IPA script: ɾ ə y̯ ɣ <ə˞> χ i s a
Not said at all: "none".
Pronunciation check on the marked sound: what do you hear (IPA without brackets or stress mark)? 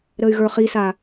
ə˞